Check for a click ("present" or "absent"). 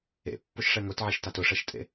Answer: absent